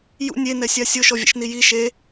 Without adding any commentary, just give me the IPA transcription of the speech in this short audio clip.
j ṵ nʲ e n ɛ sʲ a sʲ o ʃ ɔ vʲ ɛ̰ ʃ n i j i ʃ e

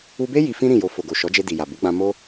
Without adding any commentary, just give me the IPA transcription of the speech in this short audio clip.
u˧ b e˦ j i˧ f ĩ˦ ɾ ĩ˦˨ j o˧ f o˨ ɡ o˨ ʃ ɔ˨˦ d͡ʒ e˧ d i˨ j a˨ b u˨˦ ɡ͡b ã˧ m o˦

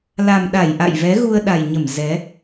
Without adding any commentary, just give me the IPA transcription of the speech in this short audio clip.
l a˨˩ m ɗ a˧˩ j ʔ a̰˧˨ j v ɛ˨˦ ɣ u˧ ə̯ ɗ a˨˩ j ɲ ə˧˩ m z ɛ˨˦

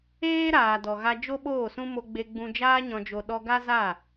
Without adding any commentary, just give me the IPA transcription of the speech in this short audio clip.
eː˦ ɾ aː˨ d ɔ˨ ɣ a˧ d͡ʒ o˦ ɓ oː˦˨ s ũ˦ m o˧ ɡ͡b e˧ ɡ͡b ũ˧ d͡ʒ aː˧ ɲ ɔ̃˨ d͡ʒ o˨ ɗ ɔ˧ ɡ a˦ z a˦˨

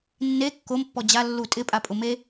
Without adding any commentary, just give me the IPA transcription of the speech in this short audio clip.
nː e kː o m pː ɔ d͡ʑ a lː u tʼ ɪ pʼ a pʼ ʊ m e

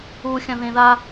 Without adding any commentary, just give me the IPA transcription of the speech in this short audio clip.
u xʲ ɐ̃ ð ẽ ð a

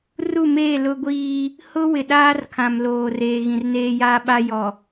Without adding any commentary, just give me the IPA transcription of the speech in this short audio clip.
r u˦˨ m eː˦˨ l ʊ˦ ɡʷ iː˦ | h ʊ˦ w ɪ˨ ɗ aː˦ r kʰ ã˨ m l oː˨ r eː˨ ɣ ĩ˨ r n eː˦ j aː˦ ɓ a˦ j ɔ˨

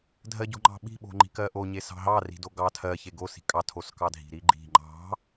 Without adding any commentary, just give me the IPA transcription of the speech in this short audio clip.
dʱ ɜ ɟ o̤ ŋ͡ǃ ɑ̤ ɓ i̤ ɓ o̤ ŋ͡ǃ i̤ k ɜ ʔ o ɲ e s ɑ̤ ɦ ɑ r i̤ d o ɡ ɑ tʰ ɜ ç e ɡ o s i̤ kʼ ɑ tʰ o s k ɑ dʱ i̤ ɾ i ɡ͡ǃ i̤ ŋ͡ǃ ɑ̤

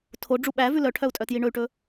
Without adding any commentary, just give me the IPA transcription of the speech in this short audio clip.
tʰ o ɖ͡ʐ u ɓ æ v ʉ l œ ʈʰ œ u̯ tʼ œ t j i ɳ ɵ y̯ ʈ ɵ

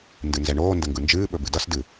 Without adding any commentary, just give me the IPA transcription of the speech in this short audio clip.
n d ɨ n z ɛ ɳ oː n d ə ŋ ɡ ɯ n d͡ʒ ɨː ɓ ɵ b ɨ d ʌ s d ɨ

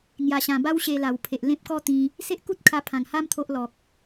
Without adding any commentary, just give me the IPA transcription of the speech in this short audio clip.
ŋ j a˨˩ ɕ ã˨˩ b a˦ w ɕ e˧ l a˨˩ w pʰ e˨ ʔ l ẽ˦ p̚ k ɔ˦ t̪ ĩ˧ | s e˦ ʔ k u˦ t̚ kʰ a˧ pʰ ã˨˩ ŋ h a˦ m t̪ʰ o˦ ʔ l ɔ˨ k̚

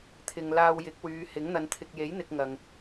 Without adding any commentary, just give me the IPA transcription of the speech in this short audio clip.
t̪ʰ ɪ˨ ŋ l aː˧ w j ɪ˨˥ k̚ w yː˨˧ h ɪ˨˥ ŋ n̪ ɐ˨ n t̪ʰ ɪ˨ k̚ j e˨˥ j n̪ ɪ˨ k̚ ŋ ɐ˨ ŋ

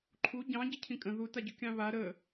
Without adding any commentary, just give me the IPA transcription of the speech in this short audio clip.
ǃʰ u ɟ ɑ̃ ɟ ə cʰ ĩ kʼ ə̃ ð u t a ɟ ʏ kʲ ɑ̃ β a ɾ ə

